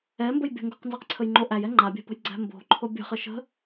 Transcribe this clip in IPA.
ɛ m b ə j bʲ ə̤ ŋ ɡ o q n z ɛ q ǀʰ ə j ŋ͡ǃ o ʔ æ j ɛ ŋ͡ǃ a bʲ æ̤ p ə̤ j ɡ͡ǀ æ̤ m b o̤ ǃʰ o bʲ ə̤ χ ə ʃ ə̤

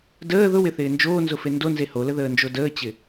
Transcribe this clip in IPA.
d əː ð ʊ w ɪ θ ɪː n d͡ʒ oː n z ʊ f e n d o n z e h o l ə ð əː n d͡ʒ o d əː t͡ɕ ɪ

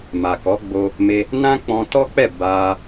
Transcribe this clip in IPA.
m a˨ k ɔ˨˦ ɡ͡b o˧ | m e˧ | n ã˦ k͡p ɔ̃˧ t ɔ˦ k͡p ɛ˦˨ b a˧

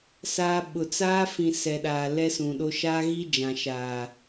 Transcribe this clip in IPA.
s aː˦ ɓ ʊ˨ t͡s aː˦ f ĩ˨ s ɛ˨ ɗ aː˨ l ɛ˦ s ũ˨ ɗ o˦ ʃ aː˦ ɣ i˦ d͡ʒ ã˨ ʃ aː˨

